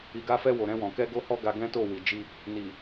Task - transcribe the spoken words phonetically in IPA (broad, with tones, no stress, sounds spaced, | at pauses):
i˨ ɡ a˧ f ɛ˧ w o˨ ɾ ɛ̃˧ w ɔ̃˨ k ɛ˧ ɡ o˧ h ɔ˧ ɡ a˧ ɡ ɛ̃˦ t o˦˨ w i˨ d͡ʒ i˧ | n i˨